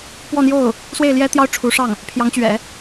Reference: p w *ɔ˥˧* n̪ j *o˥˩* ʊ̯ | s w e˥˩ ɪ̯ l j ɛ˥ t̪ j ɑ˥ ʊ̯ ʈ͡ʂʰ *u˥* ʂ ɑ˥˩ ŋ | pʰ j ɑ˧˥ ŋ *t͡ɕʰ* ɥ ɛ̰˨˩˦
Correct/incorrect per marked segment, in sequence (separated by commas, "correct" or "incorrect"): correct, correct, incorrect, incorrect